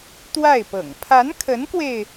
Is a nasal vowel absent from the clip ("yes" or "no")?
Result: yes